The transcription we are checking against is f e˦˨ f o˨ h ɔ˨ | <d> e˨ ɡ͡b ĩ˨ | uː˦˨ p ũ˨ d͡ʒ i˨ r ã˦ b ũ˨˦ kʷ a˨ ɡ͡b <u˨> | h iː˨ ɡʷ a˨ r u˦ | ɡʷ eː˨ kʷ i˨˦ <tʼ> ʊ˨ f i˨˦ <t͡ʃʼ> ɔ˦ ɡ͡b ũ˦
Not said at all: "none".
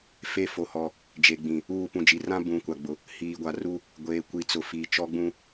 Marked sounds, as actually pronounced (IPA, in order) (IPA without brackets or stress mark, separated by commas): d͡ʒ, ʊ˨, t͡s, t͡ʃ